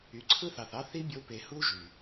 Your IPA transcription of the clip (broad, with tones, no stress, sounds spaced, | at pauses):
y˨ ǀʰ ɯ˦ θ ɑ˨ θ ɑ˦ θ i˦ bʲ o˧ p e˨ h u˦ ʒ y˨